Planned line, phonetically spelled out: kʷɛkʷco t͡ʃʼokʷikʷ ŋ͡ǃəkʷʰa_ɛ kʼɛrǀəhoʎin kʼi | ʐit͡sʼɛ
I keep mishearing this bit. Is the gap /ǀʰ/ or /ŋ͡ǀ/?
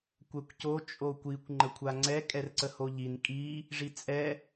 ŋ͡ǀ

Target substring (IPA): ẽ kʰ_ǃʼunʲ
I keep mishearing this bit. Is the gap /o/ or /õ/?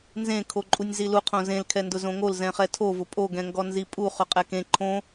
o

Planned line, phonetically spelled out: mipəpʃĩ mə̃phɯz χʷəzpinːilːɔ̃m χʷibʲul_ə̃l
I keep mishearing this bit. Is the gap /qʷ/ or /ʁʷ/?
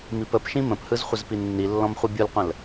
qʷ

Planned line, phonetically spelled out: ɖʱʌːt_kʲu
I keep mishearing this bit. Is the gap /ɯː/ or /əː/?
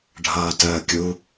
əː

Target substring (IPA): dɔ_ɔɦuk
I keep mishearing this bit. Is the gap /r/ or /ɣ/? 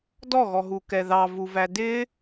ɣ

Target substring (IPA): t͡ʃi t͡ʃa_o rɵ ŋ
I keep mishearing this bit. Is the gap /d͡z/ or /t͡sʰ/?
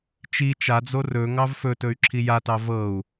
d͡z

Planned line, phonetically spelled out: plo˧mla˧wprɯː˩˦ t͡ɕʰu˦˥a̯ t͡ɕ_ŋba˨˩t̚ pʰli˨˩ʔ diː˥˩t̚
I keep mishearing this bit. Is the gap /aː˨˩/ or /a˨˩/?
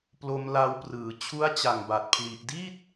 a˨˩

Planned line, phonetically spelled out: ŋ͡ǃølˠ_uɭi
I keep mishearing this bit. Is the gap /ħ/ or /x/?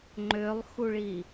x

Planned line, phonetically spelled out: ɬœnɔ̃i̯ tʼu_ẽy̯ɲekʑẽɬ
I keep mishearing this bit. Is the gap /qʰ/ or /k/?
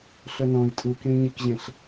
k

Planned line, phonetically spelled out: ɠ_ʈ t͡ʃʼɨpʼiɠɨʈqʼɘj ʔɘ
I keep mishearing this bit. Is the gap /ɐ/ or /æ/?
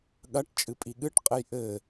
ɐ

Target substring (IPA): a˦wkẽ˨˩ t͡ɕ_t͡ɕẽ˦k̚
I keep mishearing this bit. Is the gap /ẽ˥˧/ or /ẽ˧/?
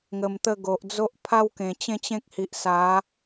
ẽ˥˧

